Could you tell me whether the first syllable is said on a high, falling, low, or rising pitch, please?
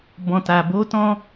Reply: low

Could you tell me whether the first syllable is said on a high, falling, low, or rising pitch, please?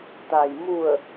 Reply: low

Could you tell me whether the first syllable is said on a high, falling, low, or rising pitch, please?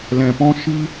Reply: low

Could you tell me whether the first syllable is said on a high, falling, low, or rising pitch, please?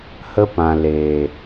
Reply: high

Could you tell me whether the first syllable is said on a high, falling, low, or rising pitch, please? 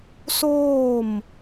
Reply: falling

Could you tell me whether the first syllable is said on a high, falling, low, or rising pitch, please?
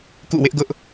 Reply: falling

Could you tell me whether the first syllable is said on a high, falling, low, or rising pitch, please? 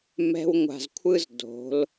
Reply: high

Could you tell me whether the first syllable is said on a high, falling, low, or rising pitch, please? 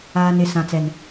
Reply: low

